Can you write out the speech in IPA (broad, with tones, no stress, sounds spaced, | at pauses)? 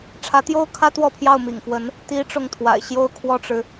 ʈ͡ʂʰ ä˧˥ t̪ j o˥ ʊ̯ kʰ ä˥ t̪ w ɔ˥˧ pʰ j ɑ˥˩ ʊ̯ m ḭ˨˩ ŋ f w ə˧˥ n | t̪ i˧˥ ʈ͡ʂ ʊ˥˩ ŋ t̪ʰ w a̰˨˩ ɪ̯ ɕ j o˥˧ ʊ̯ kʰ w ɔ˥˩ ʈ͡ʂ ɻ̩˩